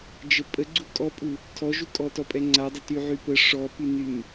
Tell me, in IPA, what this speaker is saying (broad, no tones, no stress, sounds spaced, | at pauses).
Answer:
d͡ʒ ə pʼ ə ɡ͡ǀ u kʼ ɔ pʼ u | tʰ ɔ ʒ u kʼ ɔ t ɔ pʼ ɛ ŋ͡ǀ a dˤ ə t y ʕ y p ə ʂ ɔ p y n y m